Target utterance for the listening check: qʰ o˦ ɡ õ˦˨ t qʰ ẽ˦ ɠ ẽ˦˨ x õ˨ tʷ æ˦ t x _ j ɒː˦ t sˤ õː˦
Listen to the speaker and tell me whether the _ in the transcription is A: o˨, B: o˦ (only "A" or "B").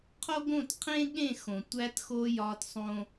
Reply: B